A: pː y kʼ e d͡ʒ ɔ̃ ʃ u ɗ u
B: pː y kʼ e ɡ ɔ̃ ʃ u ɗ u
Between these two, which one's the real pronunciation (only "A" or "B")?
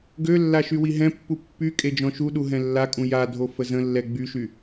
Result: A